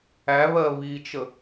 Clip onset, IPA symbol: æ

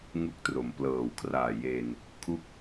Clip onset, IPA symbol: ŋ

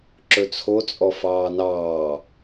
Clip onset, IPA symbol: ǁ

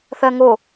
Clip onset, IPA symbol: θ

